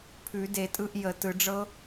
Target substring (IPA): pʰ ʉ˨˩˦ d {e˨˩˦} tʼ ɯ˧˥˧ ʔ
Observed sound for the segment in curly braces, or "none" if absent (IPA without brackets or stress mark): e˨˩˦